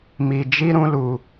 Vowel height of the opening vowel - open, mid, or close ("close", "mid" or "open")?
close